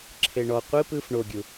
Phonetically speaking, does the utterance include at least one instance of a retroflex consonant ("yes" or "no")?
yes